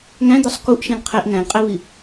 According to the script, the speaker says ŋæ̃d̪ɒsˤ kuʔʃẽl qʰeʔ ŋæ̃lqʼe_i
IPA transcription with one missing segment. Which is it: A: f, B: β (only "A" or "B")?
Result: B